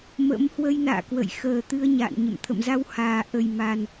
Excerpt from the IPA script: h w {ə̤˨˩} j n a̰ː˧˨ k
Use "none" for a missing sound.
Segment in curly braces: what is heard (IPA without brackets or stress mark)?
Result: ə˧